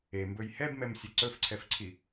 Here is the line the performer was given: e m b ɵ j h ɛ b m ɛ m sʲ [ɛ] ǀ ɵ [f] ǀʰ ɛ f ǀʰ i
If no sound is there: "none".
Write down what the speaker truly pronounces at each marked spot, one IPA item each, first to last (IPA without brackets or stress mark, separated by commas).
ɛ, f